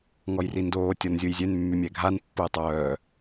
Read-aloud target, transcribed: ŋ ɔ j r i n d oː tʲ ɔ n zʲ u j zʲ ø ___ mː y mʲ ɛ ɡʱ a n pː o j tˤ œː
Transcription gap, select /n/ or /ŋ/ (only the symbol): n